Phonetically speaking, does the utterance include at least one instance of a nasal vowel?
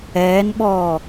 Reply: no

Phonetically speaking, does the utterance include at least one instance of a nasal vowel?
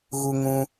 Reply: yes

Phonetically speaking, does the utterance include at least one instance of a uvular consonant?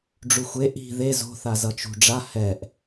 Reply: no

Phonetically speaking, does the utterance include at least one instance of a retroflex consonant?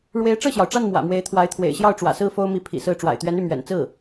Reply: yes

